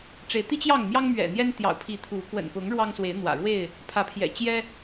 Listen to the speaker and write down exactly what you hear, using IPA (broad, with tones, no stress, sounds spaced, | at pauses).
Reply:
ʈ͡ʂ e˨˦ ɪ̯ t̪ i˦ t͡ɕ j ɑ˥˨ ŋ m j ɑ˦ ŋ m ɥ ɛ̰˨˩ n̪ j ɛ˦ n t̪ j ɑ̰˨˩ ʊ̯ pʰ i˨˦ t̪ʰ u˨˦ k w ə̰˨˩ n p ʊ˨˦ ŋ ɻ w ɑ˦ ŋ s w e˨˦ ɪ̯ n̪ w ä̰˨˩ ɻ w e˥˨ ɪ̯ | pʰ ä˨˦ pʰ j ɛ̰˨˩ t͡ɕ j ɛ˦